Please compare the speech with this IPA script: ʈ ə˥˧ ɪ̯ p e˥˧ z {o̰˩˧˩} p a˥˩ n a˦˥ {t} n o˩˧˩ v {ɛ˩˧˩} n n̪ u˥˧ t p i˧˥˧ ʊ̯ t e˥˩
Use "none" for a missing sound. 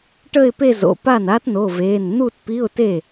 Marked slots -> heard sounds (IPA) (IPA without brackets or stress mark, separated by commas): o̰˩˧˩, t, e˩˧˩